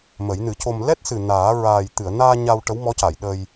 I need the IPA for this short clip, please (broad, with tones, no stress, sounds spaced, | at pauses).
m ə˨˩˦ j n ɨ˨˩˦ c o˧ m l ɛ˦˥ t̚ s ɨ˨˩ n aː˨˩˦ ɹ aː˨˩ j t̪ ɨ˨˩˨ ə̯ n aː˧ ɲ a˧ w ʈ ə˧˥ w m ɔ˧˥ c a˨˩˨ j ɗ ə˧ j